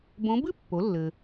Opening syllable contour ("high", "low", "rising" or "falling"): rising